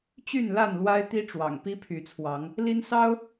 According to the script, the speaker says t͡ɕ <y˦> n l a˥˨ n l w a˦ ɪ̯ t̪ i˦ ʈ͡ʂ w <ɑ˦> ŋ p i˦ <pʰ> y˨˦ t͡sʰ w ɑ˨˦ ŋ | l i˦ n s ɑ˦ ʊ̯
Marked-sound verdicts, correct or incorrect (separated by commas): incorrect, incorrect, correct